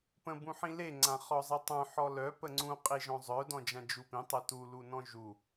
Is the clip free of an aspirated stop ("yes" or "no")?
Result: yes